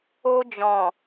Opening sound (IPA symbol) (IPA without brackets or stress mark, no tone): o